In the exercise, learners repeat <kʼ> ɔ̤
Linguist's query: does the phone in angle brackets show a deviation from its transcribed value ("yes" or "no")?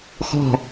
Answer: yes